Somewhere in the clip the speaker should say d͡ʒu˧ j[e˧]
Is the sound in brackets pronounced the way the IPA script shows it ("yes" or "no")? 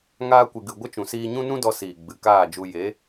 no